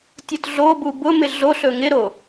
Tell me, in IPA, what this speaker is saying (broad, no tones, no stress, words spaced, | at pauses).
tʲʊtɮobu bʊmɪ ɮoɬɵ ŋɪɾo